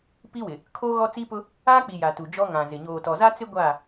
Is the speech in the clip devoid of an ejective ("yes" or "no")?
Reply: yes